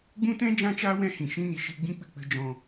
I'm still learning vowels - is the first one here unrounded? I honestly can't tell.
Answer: no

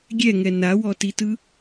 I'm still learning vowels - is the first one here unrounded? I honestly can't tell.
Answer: yes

